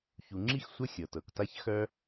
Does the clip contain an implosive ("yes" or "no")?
no